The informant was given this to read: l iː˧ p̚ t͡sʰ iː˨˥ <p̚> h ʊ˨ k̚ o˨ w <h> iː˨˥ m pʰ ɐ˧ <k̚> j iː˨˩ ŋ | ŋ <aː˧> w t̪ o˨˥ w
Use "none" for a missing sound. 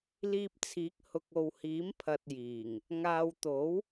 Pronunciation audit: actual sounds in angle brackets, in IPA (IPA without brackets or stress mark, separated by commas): k̚, h, t̚, aː˧